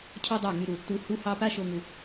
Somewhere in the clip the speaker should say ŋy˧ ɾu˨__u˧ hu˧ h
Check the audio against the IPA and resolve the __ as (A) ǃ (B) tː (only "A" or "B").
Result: B